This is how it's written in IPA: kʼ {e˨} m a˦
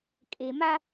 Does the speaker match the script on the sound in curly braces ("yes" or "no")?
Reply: yes